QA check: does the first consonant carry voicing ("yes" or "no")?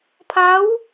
no